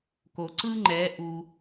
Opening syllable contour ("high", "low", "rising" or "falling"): low